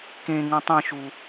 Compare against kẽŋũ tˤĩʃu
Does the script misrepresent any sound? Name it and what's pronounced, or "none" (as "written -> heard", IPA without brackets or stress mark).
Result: none